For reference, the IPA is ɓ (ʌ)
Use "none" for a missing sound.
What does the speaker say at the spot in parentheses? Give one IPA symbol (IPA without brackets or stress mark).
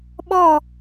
ɔ